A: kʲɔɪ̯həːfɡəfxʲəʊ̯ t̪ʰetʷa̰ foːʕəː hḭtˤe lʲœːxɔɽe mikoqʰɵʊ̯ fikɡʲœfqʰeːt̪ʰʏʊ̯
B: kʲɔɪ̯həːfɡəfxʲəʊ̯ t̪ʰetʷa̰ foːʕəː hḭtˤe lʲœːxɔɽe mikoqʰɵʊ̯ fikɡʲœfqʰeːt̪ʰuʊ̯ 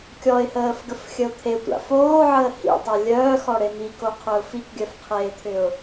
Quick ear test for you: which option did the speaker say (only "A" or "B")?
A